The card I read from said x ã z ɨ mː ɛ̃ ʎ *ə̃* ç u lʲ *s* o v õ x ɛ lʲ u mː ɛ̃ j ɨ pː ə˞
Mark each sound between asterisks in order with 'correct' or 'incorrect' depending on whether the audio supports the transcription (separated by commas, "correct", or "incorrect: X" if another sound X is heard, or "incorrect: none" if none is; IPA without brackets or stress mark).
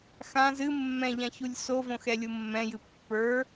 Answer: incorrect: ã, correct